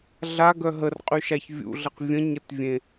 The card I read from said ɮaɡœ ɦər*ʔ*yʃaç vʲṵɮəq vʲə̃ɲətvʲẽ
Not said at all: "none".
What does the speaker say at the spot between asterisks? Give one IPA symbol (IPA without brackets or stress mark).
qʼ